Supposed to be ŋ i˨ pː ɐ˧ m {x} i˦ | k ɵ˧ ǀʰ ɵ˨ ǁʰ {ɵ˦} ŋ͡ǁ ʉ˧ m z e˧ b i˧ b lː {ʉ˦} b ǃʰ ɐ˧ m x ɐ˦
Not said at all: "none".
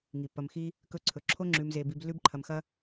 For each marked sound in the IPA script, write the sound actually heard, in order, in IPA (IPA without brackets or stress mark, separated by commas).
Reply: x, o˦, ʉ˦